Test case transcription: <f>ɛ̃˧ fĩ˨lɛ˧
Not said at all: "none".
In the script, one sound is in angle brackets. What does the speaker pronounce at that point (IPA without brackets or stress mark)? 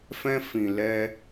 f